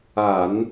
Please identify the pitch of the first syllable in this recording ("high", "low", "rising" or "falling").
low